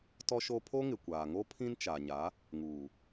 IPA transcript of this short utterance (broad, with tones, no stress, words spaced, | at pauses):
tɔ˦ʃo˦ pʰo˦ŋɪ˨kʷaː˨ŋo˦ pʰĩ˦nt͡ʃa˨ɲa˨˦ | ŋuː˨